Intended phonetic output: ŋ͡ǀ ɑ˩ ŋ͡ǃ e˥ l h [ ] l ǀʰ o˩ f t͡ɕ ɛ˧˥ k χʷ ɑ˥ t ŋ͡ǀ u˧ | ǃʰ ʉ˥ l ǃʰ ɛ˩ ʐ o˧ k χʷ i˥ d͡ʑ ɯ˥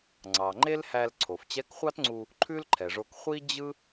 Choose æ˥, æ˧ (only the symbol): æ˧